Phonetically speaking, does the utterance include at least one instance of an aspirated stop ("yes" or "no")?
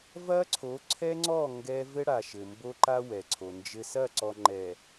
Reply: yes